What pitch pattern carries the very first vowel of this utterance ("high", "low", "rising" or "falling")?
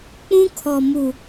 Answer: high